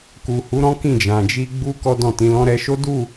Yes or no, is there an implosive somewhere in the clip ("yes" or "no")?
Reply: no